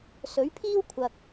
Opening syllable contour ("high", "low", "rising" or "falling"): rising